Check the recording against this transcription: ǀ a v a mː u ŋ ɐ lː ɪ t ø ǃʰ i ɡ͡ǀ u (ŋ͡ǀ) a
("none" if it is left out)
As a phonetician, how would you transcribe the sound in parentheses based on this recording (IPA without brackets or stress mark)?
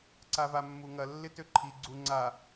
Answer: ŋ͡ǀ